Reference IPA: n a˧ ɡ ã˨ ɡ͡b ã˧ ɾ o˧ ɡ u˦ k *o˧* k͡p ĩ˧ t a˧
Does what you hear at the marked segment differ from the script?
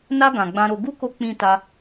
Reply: no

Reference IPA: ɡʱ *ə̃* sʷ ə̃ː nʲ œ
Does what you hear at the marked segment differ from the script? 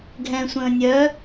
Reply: yes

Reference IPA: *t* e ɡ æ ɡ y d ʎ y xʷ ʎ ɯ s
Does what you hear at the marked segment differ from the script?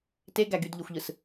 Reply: no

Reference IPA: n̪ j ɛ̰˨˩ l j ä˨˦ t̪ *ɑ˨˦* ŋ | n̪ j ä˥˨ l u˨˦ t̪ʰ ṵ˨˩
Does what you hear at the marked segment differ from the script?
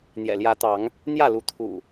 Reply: no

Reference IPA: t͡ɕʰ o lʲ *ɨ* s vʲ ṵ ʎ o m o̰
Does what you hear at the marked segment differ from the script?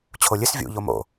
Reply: no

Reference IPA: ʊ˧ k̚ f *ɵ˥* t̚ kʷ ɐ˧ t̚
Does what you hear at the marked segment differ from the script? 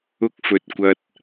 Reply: yes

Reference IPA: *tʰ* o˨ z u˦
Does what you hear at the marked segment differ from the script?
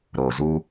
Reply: yes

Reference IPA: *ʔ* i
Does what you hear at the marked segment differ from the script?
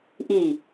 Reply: no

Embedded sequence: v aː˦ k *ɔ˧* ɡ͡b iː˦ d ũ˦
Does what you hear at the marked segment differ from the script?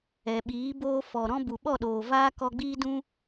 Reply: no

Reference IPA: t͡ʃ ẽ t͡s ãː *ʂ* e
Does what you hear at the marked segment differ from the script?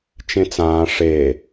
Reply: no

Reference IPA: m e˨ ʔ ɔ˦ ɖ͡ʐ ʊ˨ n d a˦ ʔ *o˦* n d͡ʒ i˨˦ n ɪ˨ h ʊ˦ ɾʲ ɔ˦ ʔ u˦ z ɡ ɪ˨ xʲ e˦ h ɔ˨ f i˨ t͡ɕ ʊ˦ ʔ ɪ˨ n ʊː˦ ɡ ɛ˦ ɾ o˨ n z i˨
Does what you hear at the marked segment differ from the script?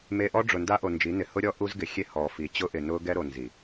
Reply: yes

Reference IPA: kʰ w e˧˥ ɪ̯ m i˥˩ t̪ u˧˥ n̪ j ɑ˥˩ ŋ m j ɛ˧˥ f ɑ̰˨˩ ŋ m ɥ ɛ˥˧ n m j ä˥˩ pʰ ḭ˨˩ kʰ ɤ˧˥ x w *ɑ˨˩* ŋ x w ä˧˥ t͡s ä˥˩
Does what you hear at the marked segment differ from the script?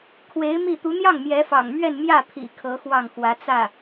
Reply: yes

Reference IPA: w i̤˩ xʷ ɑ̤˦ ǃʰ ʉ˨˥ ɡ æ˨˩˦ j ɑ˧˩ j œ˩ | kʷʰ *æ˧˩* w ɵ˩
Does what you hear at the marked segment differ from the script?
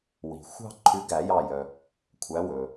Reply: yes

